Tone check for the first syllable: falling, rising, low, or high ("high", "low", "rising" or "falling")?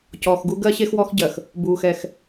low